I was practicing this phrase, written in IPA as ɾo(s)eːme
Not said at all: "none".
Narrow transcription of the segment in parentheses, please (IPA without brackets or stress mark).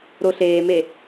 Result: ɬ